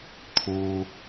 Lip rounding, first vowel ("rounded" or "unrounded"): rounded